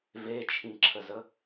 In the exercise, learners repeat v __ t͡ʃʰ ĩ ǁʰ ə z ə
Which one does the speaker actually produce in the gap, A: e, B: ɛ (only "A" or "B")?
A